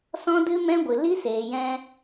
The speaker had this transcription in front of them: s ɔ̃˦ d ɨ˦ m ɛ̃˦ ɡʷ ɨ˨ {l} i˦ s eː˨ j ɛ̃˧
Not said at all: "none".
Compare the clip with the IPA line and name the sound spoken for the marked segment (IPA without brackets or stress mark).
l